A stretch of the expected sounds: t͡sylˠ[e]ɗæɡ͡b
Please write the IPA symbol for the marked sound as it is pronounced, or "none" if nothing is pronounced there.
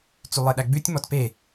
e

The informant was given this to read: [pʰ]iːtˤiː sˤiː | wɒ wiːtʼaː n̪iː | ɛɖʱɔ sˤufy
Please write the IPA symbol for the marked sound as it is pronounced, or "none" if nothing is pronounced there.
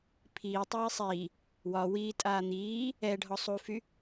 pʰ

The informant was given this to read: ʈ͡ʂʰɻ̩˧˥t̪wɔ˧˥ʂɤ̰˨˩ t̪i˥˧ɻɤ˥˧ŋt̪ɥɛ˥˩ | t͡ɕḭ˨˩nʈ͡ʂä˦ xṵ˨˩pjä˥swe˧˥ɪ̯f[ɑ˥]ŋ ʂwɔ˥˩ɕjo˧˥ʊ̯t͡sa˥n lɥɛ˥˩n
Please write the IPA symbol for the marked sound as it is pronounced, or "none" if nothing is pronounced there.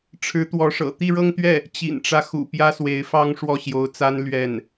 ɑ˥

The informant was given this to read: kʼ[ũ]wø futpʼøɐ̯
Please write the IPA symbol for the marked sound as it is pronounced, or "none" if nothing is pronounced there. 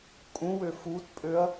ũ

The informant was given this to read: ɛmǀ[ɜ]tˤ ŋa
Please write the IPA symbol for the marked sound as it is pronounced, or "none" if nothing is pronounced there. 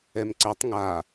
ɜ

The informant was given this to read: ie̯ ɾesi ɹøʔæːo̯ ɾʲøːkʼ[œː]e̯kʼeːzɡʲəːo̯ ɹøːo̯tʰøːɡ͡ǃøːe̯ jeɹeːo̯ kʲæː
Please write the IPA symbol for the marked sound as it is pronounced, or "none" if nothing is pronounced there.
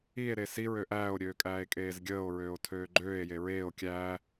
æː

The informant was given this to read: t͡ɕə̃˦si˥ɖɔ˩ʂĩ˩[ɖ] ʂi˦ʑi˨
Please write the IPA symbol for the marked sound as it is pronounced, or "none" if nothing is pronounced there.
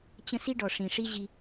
none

